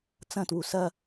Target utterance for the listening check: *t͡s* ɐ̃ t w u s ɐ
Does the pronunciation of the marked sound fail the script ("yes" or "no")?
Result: no